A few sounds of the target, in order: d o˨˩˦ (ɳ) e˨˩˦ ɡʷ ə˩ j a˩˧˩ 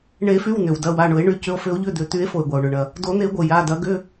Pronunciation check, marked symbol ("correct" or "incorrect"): incorrect